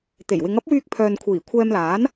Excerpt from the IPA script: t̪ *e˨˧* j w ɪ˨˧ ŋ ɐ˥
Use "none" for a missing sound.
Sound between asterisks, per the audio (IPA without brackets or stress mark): e˨˩